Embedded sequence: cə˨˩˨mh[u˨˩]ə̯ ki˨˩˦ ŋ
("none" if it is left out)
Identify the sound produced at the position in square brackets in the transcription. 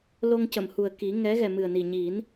u˨˩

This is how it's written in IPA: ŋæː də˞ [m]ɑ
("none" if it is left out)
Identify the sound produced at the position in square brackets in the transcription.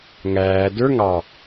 ŋ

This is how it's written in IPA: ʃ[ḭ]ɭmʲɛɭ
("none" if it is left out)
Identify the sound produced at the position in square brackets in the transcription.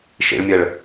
ḭ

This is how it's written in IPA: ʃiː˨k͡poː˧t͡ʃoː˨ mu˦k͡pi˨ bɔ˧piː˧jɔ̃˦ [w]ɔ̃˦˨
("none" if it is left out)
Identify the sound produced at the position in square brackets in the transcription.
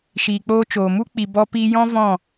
v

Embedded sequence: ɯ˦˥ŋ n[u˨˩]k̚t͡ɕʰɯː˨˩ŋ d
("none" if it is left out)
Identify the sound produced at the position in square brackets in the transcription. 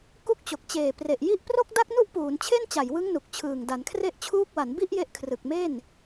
u˨˩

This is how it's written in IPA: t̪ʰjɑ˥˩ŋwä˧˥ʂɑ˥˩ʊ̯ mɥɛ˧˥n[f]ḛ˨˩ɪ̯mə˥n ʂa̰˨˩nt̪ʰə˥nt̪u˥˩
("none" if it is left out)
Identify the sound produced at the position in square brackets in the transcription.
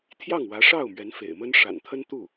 f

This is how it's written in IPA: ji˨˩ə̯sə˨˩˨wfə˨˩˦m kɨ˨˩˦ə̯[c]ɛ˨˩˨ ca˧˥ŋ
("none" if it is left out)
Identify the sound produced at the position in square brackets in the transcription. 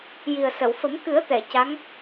t̪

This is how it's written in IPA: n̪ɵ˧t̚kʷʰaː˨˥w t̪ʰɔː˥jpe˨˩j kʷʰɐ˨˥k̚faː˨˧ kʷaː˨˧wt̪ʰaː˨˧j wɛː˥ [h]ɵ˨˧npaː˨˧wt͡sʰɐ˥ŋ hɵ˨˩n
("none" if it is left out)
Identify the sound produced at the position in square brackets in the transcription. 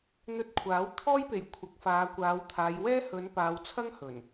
h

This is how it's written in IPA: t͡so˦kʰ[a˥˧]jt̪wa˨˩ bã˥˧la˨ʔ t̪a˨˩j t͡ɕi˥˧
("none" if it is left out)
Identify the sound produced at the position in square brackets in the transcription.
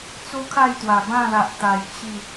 a˥˧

